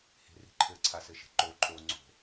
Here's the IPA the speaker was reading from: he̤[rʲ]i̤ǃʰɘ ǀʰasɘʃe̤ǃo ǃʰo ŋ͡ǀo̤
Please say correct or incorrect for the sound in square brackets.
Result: incorrect